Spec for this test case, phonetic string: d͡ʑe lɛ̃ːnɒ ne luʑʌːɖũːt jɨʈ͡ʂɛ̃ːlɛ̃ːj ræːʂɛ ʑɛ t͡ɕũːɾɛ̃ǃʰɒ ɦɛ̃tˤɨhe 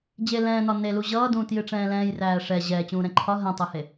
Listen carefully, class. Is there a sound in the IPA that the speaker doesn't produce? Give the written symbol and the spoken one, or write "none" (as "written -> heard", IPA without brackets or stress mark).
ɖ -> d